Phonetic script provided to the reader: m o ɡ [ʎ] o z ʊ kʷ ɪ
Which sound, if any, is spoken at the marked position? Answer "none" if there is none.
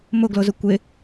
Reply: l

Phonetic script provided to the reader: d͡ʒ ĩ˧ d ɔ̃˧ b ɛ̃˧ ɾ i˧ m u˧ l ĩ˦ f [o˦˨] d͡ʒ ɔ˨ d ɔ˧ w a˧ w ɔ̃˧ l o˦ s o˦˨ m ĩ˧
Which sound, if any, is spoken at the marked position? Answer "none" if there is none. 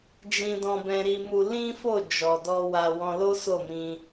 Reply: o˦˨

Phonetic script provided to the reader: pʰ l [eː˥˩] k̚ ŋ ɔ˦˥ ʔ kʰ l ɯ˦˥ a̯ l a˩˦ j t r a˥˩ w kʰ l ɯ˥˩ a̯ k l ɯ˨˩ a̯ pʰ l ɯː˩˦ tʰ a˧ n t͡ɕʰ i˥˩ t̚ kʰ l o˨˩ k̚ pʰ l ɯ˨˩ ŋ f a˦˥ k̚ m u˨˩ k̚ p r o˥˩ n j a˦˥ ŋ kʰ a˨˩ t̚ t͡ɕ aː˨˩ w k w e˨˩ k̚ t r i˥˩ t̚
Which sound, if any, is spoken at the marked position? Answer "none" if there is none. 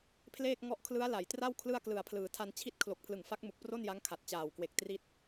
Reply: eː˥˩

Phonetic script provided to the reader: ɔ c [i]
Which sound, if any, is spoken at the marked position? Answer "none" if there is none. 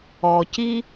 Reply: i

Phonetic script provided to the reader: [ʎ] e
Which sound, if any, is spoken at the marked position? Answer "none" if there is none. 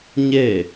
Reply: ɲ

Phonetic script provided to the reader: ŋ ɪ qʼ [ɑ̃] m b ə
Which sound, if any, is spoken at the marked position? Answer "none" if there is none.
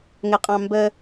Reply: ɑ̃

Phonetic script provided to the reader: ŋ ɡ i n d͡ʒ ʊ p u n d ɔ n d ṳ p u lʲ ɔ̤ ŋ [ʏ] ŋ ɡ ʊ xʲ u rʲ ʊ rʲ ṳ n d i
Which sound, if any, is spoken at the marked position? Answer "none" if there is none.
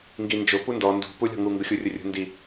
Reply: u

